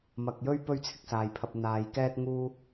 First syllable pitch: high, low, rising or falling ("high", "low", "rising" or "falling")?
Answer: low